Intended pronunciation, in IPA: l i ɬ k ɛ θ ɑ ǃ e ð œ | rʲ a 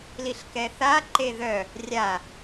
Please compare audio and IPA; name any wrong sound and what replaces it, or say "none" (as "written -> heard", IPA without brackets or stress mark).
ɑ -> a